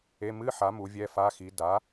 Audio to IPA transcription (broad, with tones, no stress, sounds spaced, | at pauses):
e˧˥˧ m ɨ˧˥˧ ħ a˩˥ m u˩˥ vʲ ɛ˧˥˧ f a˧˥˧ x i˩˥ d a˩˥